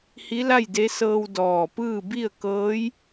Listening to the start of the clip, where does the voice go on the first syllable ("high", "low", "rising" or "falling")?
rising